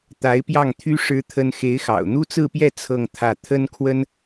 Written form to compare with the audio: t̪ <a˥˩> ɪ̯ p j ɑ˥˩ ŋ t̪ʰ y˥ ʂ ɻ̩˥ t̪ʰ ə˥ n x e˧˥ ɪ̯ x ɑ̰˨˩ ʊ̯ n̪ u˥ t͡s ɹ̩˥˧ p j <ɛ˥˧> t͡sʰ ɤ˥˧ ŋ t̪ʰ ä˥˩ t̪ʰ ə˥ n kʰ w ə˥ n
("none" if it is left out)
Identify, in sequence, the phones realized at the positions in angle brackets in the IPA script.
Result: a˧˥, ɛ˥˧

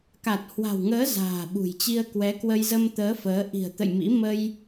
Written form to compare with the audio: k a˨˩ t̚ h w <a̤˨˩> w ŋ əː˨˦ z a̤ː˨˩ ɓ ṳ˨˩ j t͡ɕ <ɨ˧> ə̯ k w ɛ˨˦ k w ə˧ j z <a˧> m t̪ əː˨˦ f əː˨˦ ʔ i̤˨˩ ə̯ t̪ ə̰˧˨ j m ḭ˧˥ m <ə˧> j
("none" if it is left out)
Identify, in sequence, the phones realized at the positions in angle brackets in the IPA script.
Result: a̤˨˩, i˧, ə˧, ə˧

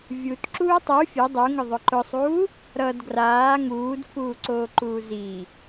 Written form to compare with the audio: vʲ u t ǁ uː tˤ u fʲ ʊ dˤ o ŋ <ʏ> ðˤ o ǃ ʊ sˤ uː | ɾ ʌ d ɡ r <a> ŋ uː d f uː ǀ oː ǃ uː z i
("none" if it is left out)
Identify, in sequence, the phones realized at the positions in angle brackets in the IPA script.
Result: ʏ, aː

